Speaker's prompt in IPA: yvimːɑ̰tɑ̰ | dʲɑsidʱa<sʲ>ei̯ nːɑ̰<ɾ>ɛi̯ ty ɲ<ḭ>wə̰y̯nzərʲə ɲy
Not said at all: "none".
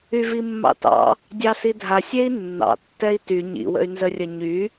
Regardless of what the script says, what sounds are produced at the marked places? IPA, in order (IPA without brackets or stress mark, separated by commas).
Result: sʲ, tː, ḭ